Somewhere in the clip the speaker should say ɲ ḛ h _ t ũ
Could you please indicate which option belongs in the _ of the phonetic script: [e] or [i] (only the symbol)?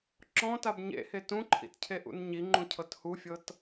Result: e